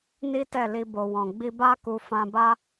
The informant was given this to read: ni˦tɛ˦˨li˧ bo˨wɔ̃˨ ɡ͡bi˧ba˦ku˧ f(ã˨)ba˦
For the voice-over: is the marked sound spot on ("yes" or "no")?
no